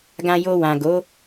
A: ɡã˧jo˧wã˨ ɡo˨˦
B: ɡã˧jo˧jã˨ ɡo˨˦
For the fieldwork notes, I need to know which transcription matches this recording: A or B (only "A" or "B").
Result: A